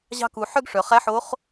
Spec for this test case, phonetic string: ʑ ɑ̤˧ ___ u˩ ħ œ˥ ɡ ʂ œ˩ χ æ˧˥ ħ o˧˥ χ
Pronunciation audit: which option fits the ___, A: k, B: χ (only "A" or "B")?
A